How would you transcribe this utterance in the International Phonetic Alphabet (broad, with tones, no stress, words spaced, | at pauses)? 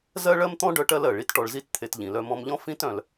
zɜ˥ɭɜ˥mt̪ɔ̃˥ ɖœ˥ʈɜ˥lɜ˩ ɭi˥tʈɔ˧ɭzi˥tt̪ʰe˧t ʎĩ˩lœ˧mɔ̃˧mʎɔ̃˥ fĩ˥tœ̃˩l